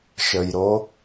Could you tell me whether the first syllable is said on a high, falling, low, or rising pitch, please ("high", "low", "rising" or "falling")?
low